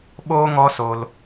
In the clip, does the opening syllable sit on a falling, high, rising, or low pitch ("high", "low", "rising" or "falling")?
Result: high